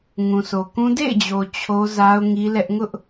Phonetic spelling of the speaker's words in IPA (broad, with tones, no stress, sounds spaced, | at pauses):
ŋ ũ˨ sʰ o˨ k ũ˦ d ḛ˦˨ ɪ̯ d͡ʑ o˨ t͡ɕʰ o˦ z a˦ ʊ̯ ŋ i˦ l ɛ˦ ʔ ŋ ʊ˦ ʔ